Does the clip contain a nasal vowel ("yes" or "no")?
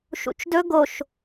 no